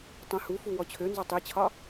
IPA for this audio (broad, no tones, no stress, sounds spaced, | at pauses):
tˤ ə̃ h u f u w ɔ t͡ɕʰ ø n z ɒ tˤ i t͡ɕʰ ɒ